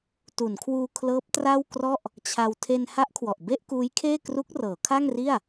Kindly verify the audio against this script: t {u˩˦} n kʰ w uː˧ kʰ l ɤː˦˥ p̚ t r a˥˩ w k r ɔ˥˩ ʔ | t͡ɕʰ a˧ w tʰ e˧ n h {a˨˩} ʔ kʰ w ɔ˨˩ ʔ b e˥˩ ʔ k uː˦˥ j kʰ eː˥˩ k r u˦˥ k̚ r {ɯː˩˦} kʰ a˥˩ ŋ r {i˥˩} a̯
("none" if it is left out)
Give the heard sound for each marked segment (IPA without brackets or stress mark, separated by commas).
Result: u˩˦, a˦˥, ɤː˩˦, i˥˩